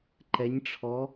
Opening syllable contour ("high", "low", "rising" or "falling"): rising